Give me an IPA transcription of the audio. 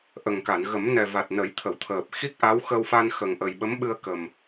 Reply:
ʔ ə˨˩ ŋ k a˨˩˨ n ɣ ə˨˩˦ m n ɛ˨˩ v a˨˩ t̚ n ə˨˩˦ j t̪ʰ ə˨˩˨ w t̪ʰ əː˨˩ p̚ x i˦˥ k̚ ʔ a˧˥ w x ə˧ w f a˧ n x ə˨˩ ŋ ʔ ə˨˩ j ɓ ə˧˥ m ɓ ɨ˧ ə̯ k ə˨˩ m

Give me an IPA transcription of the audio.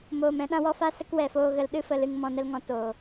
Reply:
m oː˨ m ɛ̃˧ ɗ ã˦ w ɔ˦ f a˦ s ə˦ k w ɛ˨ f oː˧ ɣ ə˧ l ɗ ɨ˦ f ə˧ l ɨ˧ ŋ m ɔ̃˧ n ə˦ l ŋ ɔ̃˧ t oː˨

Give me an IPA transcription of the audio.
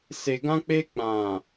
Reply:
s e˨ ɡ ã˦ k͡p e˦ k͡p ã˨

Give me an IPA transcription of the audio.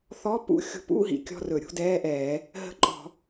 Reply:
θ ɔ˧˥˧ p ṵ˧˥˧ xʲ ṳ˧˩˧ p ṵ˧˥˧ ɦ ḭ˨˥ kʲ ɔ̤˧˥˧ r ɵ˧˩˧ ɾʲ ṳ˧˥˧ d ɛː˧˥˧ ʔ ɛː˧˩˧ | ɦ ə̤˧˥˧ ǃʼ ɔ̤˧˩˧

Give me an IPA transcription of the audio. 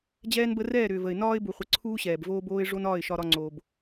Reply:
d͡ʑ ɛː˦ n b ə˦ r ɛː˦˨ ɾ ʏː˨ v ə˨ ɪ̯ n ɒː˦ ɪ̯ b u˨ χʷ ə˨˦ ǀʰ uː˦ ɕ ɛː˨ b v oː˧ b oː˧ ɪ̯ ʐ o˦ n ɒː˦˨ ɪ̯ ʃ ɒ˧ ɾ ɒ˧ ŋ͡ǀ oː˨ b

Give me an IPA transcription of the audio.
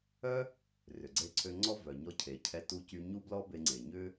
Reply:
œ˥ | r ʏ˩ ɡ͡ǀ e˧ ǀʰ ø˧ ŋ͡ǀ ɔ˥ v œ˩ ɲ ɔ˧ cʰ e˩ cʰ ɛ˧ t u˧ c y˧ ɲ u˥ b l ɔ˥ b e˧ ŋ͡ǀ e˩ ɲ ʏ˥

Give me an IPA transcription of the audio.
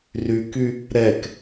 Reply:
r y k y | ɾ ɛ k

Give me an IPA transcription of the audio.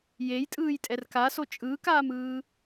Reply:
j e j tʼ ɯː j tʼ ɛ r k a s o t͡ʃʼ ɯː k aː m ɯː

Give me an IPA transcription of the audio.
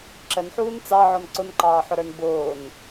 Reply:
ǁ ə n ħ uː n t͡s ɑ ʕ ɔ n ǀ ʊ n ǃ ɑː ħ ʊ ɾ ə˞ n b ʊː n

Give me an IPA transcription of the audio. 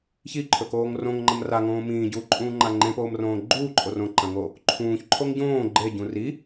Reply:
ç i ǃʰ ɵ k oː ŋ r õ ŋ ŋ͡ǃ ɐ m r a ŋ õː m ĩː ɟ uː ǃʼ ũː ŋ͡ǃ a ŋ͡ǃ ẽ p oː m r õː ɡ͡ǃ uː ǃʼ o r õ ǃ ɐ̃ ŋ o | ǃʰ ũː ç ǃʰ o ŋ ɟ õː ɡ͡ǃ e ɟ ũ r i

